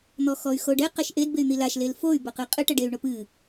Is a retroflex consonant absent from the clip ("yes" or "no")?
no